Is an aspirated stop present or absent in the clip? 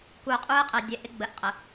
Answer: absent